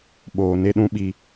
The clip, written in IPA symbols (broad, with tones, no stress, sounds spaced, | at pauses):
ɓ oː˦ n e˦ ɗ ũ˦ ɓ i˦